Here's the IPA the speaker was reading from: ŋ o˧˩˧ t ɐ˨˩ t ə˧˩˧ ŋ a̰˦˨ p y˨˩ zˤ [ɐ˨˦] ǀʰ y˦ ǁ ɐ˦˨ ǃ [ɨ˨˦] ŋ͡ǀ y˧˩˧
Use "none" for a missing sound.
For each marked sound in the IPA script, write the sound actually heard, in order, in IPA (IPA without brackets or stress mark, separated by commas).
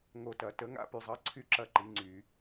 ɐ˨˦, i˨˦